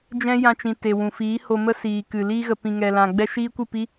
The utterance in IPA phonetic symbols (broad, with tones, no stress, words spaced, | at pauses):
d͡ʒɛ̃˦jã˧t͡ʃĩ˨ te˨wũ˨ fiː˨˦ho˧mə˦siː˨ kɨ˨ liː˧ɣə˨ pĩ˨ŋɛ˨lã˨ ɡ͡bɛ˦ʃiː˦kʷɨ˦˨pi˦